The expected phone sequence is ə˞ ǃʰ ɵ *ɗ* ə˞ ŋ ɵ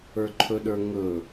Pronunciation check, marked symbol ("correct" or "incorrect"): correct